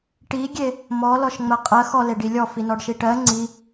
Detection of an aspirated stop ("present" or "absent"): absent